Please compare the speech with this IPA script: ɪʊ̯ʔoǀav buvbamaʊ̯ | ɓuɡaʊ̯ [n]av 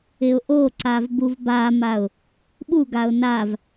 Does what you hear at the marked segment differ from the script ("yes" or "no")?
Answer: no